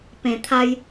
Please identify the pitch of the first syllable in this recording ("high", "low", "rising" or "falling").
low